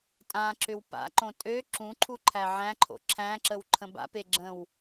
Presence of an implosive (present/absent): absent